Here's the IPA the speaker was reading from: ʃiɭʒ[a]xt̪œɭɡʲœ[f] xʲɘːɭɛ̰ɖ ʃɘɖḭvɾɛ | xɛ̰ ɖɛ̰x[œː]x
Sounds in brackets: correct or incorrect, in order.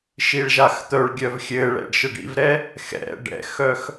correct, incorrect: v, incorrect: œ

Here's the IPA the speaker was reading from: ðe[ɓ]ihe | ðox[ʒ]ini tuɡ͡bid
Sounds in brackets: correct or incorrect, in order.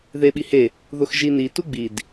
correct, correct

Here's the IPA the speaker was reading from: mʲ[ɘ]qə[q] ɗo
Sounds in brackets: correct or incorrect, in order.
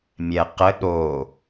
incorrect: ɛ, incorrect: none

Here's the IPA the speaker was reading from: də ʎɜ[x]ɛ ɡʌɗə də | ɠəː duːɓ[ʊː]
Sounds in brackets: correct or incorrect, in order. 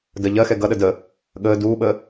correct, incorrect: əː

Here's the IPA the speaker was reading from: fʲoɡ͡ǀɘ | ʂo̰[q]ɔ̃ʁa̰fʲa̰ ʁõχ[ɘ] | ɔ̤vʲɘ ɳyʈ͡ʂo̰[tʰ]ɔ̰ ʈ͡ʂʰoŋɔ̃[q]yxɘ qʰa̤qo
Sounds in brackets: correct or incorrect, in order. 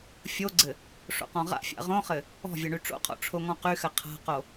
correct, correct, incorrect: qʰ, correct

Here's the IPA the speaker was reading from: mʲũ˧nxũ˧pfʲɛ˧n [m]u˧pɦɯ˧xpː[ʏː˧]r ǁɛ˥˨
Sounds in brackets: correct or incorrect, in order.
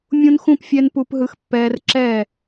incorrect: p, incorrect: ɛː˧

